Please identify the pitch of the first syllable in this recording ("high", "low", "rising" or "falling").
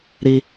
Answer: high